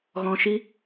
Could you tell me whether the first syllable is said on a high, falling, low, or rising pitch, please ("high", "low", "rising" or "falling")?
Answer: low